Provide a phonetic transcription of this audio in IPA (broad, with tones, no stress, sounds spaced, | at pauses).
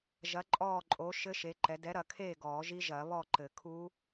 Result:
ʒ ɐ˨˦ ǃʼ ɔː˦˨ ǃʼ o˨˦ ʃ ɘ˦˥ ʃ e˨˦ ǃ ɛ˨˦ d ɛ˨˦ ɾ ɐ˨˩˦ kʰ eː˦˨ ɡ ɔː˨˩˦ ʒ i˦˥ ʒ ɐː˨˩˦ β ɔ˦˨ ǃ ɘ˨˩˦ kʰ u˦˥